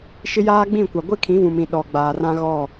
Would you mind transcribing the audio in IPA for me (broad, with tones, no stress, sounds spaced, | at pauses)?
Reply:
ʃ ɪ˦ j aː˦ ɡ͡b ĩ˦˨ kʷ a˨ ɡʷ ɪ˦ kʰ ĩ˨˦ v ũ˨ m ĩ˨ ɗ ɔ˨ ɡ͡b aː˨ r ã˦ ɣ ɔ˦˨